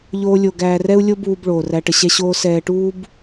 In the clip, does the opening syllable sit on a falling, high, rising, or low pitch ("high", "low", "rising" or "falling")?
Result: high